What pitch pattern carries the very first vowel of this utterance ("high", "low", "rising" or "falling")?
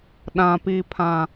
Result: low